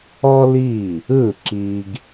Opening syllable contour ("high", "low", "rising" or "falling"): high